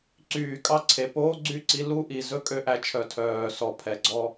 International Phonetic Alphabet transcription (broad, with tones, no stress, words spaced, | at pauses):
ǀyː˨kʼɑ˦ǀʰe˨ poː˦ɡ͡ǀy˦˨ǀi˧ lu˦ʔi˨ zɵ˦kʼø˧ʔæ˨t͡ʃʰœ˨ tʰœː˨ sɔ˨pʰɛ˨ɡ͡ǀɔ˧